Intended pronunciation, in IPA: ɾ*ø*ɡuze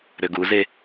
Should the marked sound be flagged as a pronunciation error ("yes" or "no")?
no